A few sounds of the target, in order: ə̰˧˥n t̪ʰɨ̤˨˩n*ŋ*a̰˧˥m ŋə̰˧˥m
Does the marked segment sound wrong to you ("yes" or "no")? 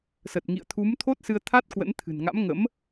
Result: no